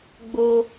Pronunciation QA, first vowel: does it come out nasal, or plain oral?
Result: oral